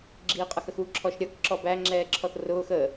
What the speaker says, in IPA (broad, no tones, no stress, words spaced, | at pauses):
ɡ͡ǁiːqʼʌxəxu ǁʰɔʃɾʲʌk ǁɔbæ ŋ͡ǁɛːǁʰɔθrʊːx əː